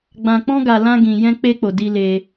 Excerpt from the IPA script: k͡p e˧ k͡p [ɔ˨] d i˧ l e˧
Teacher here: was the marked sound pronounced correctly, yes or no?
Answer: no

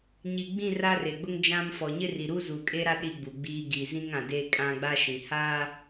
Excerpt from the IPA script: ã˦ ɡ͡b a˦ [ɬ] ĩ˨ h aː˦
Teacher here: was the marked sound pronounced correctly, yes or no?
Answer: no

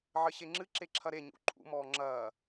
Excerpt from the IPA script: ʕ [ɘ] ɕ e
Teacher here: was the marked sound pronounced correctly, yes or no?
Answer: yes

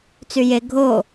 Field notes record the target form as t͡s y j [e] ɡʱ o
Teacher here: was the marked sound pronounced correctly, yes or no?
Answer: yes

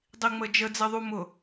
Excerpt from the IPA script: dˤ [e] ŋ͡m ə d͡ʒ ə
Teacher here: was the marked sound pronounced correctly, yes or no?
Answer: no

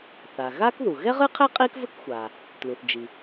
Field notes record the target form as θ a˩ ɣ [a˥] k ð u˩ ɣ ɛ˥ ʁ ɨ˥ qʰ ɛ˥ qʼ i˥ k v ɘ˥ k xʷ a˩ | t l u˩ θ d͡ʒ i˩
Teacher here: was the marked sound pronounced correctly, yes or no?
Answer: yes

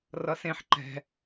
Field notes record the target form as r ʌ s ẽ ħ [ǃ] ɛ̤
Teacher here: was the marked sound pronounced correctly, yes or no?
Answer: yes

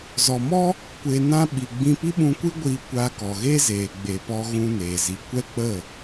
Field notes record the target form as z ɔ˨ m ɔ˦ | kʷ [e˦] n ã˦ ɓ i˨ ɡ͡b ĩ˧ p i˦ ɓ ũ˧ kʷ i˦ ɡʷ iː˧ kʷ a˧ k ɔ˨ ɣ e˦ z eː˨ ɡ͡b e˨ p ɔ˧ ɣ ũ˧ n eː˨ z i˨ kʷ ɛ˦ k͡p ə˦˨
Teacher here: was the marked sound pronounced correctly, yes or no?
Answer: no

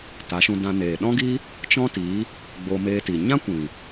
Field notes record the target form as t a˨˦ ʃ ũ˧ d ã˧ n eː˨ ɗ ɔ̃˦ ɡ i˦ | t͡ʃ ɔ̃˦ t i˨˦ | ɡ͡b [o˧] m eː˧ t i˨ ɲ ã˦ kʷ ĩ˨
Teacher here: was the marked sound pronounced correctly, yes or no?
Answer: yes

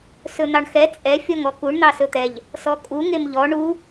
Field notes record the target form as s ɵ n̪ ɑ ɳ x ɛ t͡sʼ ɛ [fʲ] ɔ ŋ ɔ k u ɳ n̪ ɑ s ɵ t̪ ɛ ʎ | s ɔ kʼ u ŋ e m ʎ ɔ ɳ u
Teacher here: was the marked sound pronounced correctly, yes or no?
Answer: yes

